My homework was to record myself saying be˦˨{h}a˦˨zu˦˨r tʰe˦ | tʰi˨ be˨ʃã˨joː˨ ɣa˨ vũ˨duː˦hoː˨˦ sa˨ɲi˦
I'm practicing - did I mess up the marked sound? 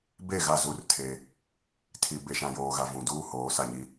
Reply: yes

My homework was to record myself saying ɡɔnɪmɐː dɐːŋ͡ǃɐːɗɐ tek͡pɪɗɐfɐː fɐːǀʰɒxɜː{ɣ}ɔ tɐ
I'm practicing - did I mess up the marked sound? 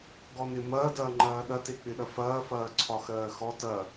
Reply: yes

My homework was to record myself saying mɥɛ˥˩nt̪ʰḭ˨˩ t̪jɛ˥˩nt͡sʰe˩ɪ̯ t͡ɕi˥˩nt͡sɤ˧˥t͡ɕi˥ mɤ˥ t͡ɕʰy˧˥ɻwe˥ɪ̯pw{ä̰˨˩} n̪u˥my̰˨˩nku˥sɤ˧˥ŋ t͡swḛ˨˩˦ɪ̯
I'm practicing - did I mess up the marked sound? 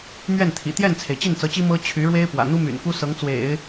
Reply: no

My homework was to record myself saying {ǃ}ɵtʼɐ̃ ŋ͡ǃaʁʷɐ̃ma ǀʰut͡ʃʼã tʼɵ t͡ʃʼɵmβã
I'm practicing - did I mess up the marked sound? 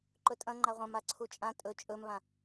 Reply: no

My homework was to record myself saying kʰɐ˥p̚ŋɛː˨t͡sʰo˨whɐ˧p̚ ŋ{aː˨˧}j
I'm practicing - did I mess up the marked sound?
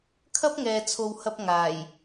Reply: yes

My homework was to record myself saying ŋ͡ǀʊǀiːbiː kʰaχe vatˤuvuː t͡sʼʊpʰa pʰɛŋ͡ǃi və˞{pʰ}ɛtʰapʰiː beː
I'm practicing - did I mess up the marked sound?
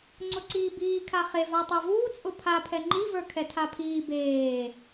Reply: yes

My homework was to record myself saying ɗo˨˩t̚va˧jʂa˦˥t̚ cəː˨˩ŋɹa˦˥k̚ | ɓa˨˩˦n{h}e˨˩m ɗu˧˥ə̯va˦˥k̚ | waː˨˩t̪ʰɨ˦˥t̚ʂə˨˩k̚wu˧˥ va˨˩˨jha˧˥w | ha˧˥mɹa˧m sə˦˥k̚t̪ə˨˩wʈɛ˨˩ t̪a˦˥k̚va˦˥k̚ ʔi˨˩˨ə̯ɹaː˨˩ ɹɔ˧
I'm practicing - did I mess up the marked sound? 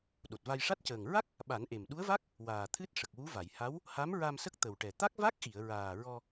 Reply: yes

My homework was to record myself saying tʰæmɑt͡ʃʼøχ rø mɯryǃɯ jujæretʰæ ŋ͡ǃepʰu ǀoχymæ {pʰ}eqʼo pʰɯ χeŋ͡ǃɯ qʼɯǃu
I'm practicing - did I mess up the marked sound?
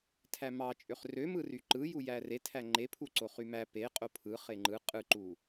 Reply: yes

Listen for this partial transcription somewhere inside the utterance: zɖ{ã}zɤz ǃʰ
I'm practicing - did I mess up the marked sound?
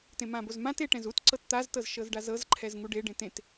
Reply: yes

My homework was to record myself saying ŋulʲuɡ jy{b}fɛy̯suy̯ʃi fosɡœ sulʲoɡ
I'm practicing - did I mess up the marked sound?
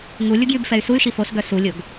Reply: no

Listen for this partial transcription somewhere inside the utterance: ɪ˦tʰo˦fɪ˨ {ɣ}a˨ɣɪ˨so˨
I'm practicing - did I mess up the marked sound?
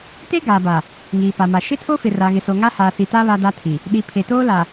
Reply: yes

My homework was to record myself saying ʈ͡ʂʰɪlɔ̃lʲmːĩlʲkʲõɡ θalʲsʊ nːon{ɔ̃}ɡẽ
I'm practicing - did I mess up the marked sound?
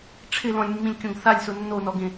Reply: yes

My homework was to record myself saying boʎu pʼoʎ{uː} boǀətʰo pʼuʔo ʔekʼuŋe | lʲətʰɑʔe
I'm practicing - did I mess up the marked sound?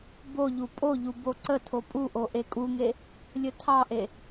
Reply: yes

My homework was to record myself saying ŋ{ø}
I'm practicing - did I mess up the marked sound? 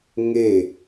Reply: yes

